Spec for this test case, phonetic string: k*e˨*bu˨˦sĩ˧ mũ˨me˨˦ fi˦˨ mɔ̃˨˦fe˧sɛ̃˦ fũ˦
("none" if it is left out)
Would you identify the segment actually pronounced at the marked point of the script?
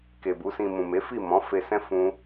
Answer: e˨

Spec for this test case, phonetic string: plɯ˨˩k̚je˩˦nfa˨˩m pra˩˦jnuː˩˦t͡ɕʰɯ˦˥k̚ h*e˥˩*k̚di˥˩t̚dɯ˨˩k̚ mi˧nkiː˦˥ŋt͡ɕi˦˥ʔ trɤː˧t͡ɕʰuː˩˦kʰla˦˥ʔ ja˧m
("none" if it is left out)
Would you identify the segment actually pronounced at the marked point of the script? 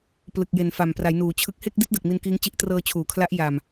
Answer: e˥˩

